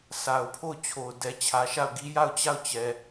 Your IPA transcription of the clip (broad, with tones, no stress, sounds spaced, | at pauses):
s a˨ ʊ̯ pʰ o˦˨ ʊ̯ t͡ɕʰ o˨ ʊ̯ d ɛ˨ t͡ɕʰ ä˨ ʃ a˦˨ ʊ̯ ɡ i˦ j a˦˨ ʊ̯ t͡ɕ a˦˨ ʊ̯ t͡ɕ ɛ˨